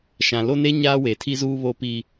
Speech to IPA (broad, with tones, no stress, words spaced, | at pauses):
ʃã˨lo˦ne˦ ɲaː˦we˨tʰi˦zuː˦ βo˦piː˦